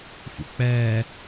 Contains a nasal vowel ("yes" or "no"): no